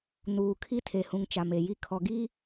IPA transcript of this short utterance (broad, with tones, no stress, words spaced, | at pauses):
nuː˨kʰi˦tʰe˨ hũ˨ŋt͡ʃa˨m e˨ji˦ kʰɔ˨ɡi˦